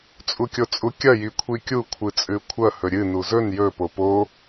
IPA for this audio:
t͡sʼ u kʲ o t͡sʼ u kʲ ɐ j i kʷʰ i kʲ u kʷʰ ɨ t͡sʼ ʉ kʷʰ ɐ h ɵ ɾʲ ɨ n u z ɵ n j ɵ p o p o

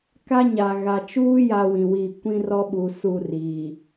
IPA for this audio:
k a˦ ɲ a˨ ɣ a˨ t͡ʃ uː˦ j a˦ w ĩ˨ w i˦˨ kʷ ĩ˦ r ɔ˦ ɓ u˨ s u˦˨ r iː˨

